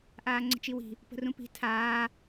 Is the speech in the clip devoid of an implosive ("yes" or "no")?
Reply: yes